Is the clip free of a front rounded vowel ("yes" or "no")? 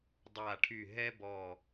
no